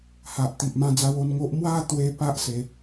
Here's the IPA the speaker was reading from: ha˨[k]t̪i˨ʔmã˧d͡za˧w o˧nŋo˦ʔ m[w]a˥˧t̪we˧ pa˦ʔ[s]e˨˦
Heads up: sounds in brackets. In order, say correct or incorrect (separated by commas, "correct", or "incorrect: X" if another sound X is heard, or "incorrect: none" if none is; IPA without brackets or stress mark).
incorrect: ʔ, correct, correct